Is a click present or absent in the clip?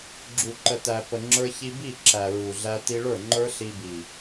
present